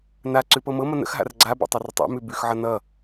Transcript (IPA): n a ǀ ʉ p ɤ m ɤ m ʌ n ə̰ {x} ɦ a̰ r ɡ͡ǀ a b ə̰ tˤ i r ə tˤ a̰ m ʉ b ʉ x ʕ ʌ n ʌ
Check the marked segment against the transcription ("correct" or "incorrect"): correct